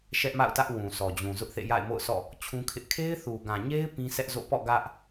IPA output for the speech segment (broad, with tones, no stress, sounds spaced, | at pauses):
ʃ ɛ˦ ʔ m a̰˦˨ ʊ̯ t ä˦ ʔ w ũ˨ s ɔ˨ d͡ʑ ũ˨ z ʊ˦ ʔ θ ḛ˦˨ j a̰˦˨ ɪ̯ m o̰˦˨ ʊ̯ sʰ ɔ̰˦˨ | t͡ɕʰ ũ˦ kʰ ɪ˦ ʔ kʰ e˦ ɪ̯ θ u˨ ɡ ã˨ ɲ e˦ ɪ̯ p ĩ˦ s ɛ˦ ʔ z o̰˦˨ p ɔ̰˦˨ ɡ ä˦ ʔ